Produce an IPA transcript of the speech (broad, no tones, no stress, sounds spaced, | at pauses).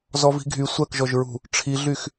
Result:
z ɔ v i̤ ɡʱ y sʷ ɜ k ʒ ɔ ʒ ɹ ṳ | ʈ͡ʂʰ i ɮ y x